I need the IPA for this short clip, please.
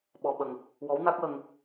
ɓɔ˧ɓə˧ŋ | wɔ˧˥wna˦˥k̚wə˧ŋ

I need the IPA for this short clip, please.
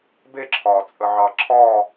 beǁʰɒː t͡sʼəʕɑǁʰɒː

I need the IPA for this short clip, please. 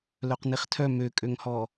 lœqniχtʰœ møkʼøŋhɔ

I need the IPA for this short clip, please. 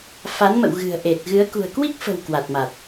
fa˨˦nmə̰˧˨w ɣɨ̤˨˩ə̯ʔe˨˩t̚ɣɨ˨˦ə̯ kṳ˨˩ə̯kwi˦˥k̚fə̤˨˩w kwa˨˩t̚ma˨˩t̚

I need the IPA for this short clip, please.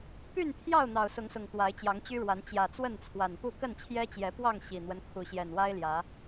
py˥˨npʰjɑ˥˨ʊ̯ n̪ɑ˨˩ʊ̯sʊ˨˦ŋsʊ˨˩ŋ t̪wa˨˦ɪ̯t͡ɕjɑ˨˦ŋt͡ɕy˦ɻwa˨˦n t͡ɕjä˨˩t͡swə˥˨nt͡sʰwa˨˩npu˥˨ kə˥˨nt͡ɕʰjɛ˦t͡ɕjɛ˨˦pwɑ˥˨ŋ ɕi˨˩n̪wə˦nkʰu˨˦ ɕjɛ˨˩nwa˦ɪ̯ljä˨˦

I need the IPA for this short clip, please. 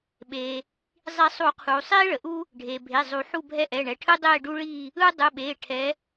ɓeː˩ | zˤi˨˩˦sˤu˨˩˦qʰuː˩ sˤiː˥ɭə˩ʔu˥ | ɖʱeː˩bʱe˩˧˩ zˤu˨˩˦ħu˥˧bʱɛ˥ ʔɛ˩˧˩ɳɛ˩˧˩ʈʰɯ˥ dˤeː˥˧ɖu˥ɭiː˥˧ | ɯ˥ dˤɯ˩˧˩ɓeː˩˧˩ ʈʰɛ˨˦

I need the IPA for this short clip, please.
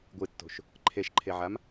ɡʷɨtːo̤ʃ | ǃʰeʃǃʰeʕam

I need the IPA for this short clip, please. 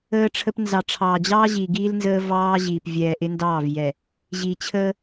əː˦ʈ͡ʂʰə˦p nzɑ˨ʈ͡ʂʰɑː˨d͡ʑɑː˦ʑiː˨ ɡiː˦lnzəː˦ vɑː˦ʑiː˨p vʲɛː˨ ʔɪ˦ndɑː˦˨v jɛ˨ | ʑiː˨t͡ɕʰəː˦

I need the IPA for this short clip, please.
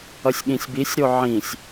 ʌsʲɠĩsʲbisʲɾo ʕĩsʲ

